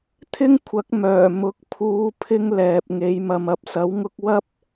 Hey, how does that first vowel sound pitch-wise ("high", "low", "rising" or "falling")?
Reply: high